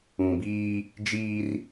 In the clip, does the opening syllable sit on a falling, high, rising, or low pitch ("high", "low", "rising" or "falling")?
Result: low